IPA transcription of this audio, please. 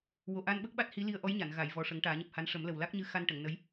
w o˨˩ ʔ a˧ n ɓ ə˦˥ k̚ ɓ a˦˥ t̚ h i˧˥ l i˧ ə̯ ʔ ɔ˧˥ j ɲ a˨˩˨ n ɣ a˨˩˨ j v ɔ˨˩ ʂ ə˨˩˦ ŋ ʈ aː˨˩˦ ɲ ɨ˨˩ p̚ h a˧˥ n ʂ ə˨˩˦ m l ə˨˩ w l a˦˥ k̚ ɲ ɨ˧ x a˧ n ʈ ə˨˩˨ ŋ n ə˧˥ j

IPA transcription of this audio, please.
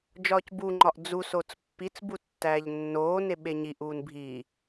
d͡ʒ ɒː c b u ŋ͡ǃ ɒ ʔ d͡z u s o t͡s pː i t͡s b u tː æː ʎ nː oː n e ɓ e ɲ i ʔ uː n bʱ i

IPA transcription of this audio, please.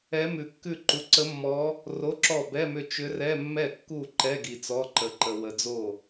ɛ˧˥ m ʉ˨ kː ʉ˥˩ ǃ u˨ ǀ ə˧˥ mː ɔ˧˥ | r o˧˥˧ ǁ ɔ˥˩ b ɛ˧˥˧ m ʏ˥˩ t͡ʃ ʏ˧˥ r ɛ˧˥˧ mː ɛ˥˩ kː u˥˩ ǃ ɛ˧˥˧ ɡ i˨ t͡s ɔ˧˥˧ ǃ ə˨ ǃ ə˨ w ə˨ d͡z o˥˩

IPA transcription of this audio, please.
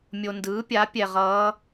mʲ o˨ n d ɯː˩˥ pʲ a˩˥ pʲ ɛ˨ ʁ ʌː˧˥

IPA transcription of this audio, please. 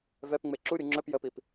v ɛ p ŋ͡m e ǁ u ɾʲ u ŋ͡ǁ œ p j ə p i p

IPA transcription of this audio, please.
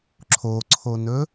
ǁʰ o ǀʰ o n ɵ

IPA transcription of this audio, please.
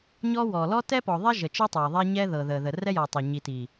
ɲ ɔ˦ w ɔ˨ l ɔ˦ t ɛ˦ p ɔ˨ ðˤ ɛ˦ ʒ ə˨ t͡ʃ i˦ tˤ ɤ˨ ə̯ ðˤ ɛ˦ ɲ ɛ˦ ð ɤ˨ ð ə˨ ð ə˨ r ɛ˦ j ɔ˨ tˤ ə˨ ɲ i˨ t i˨

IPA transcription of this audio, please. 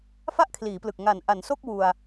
f a˥˩ ʔ kʰ l iː˩˦ p l ɯ˨˩ k̚ ŋ a˨˩ n ʔ a˩˦ n s o˥˩ k̚ w u˧ a̯

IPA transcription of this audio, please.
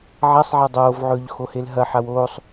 ʕ a sˤ ʕ a dˤ oː v ʕ ɵː ʎ x o h e l ɦ ɐ ħ a w oː sˤ

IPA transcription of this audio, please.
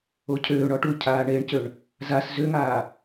o cʰ øː ɳ ɔ ʈ u cʰ aː ɳ e ɳ c ø ɳ | z a s z ø ŋ aː

